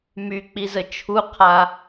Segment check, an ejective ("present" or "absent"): absent